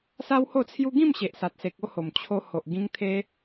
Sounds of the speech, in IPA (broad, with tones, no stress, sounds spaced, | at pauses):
s a˦ w h o˥˧ t͡sʰ j u˦ ɡ ĩ˥˧ m ɕ e˨ ʔ s a˨ t̚ s e˨ k̚ o˥˧ h o˨˩ m t͡ɕʰ o˧ h o˨ ʔ ɡ ĩ˦ ŋ t̪ʰ e˦